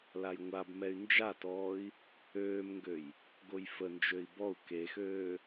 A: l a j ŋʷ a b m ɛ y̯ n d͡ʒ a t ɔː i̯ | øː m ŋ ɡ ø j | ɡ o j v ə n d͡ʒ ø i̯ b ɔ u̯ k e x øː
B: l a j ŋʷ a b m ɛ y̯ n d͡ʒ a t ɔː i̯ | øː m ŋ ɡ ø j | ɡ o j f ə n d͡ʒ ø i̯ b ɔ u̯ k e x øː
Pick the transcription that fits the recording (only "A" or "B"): B